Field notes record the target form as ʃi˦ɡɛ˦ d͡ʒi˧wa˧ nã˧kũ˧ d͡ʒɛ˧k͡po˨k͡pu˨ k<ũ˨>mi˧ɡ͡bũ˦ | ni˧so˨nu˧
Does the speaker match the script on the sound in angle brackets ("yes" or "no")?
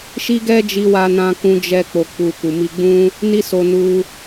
no